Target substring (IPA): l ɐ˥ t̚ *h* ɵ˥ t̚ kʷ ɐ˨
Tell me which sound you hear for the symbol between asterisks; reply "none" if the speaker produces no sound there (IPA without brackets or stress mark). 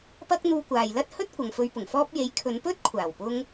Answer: h